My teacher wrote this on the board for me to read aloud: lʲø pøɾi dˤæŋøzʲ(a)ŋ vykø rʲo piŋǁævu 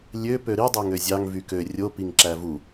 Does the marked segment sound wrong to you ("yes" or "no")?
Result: yes